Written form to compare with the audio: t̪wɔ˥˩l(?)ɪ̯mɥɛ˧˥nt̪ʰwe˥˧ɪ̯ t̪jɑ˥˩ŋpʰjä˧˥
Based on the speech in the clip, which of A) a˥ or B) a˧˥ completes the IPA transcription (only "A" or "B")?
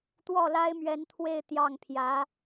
A